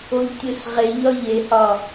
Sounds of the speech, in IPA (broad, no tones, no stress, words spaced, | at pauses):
oʎtʲosʁeʎɒ ʎehɒ